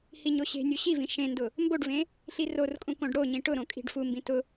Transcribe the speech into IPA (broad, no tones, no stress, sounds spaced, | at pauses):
h i ɲ o ɕ e̤ nʲ u ɕ i v ĩ ʃ ẽ n d ʊ | m b o ɖ v ẽ | ɬ i r o r kʼ ũ k õ ɖ ɽ o ɲ ĩ ʈ ʊ ɾ õ kʼ i̤ ɖ f u m b ĩ t ʊ